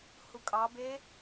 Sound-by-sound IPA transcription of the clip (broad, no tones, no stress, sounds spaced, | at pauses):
h u kʼ ɑ b e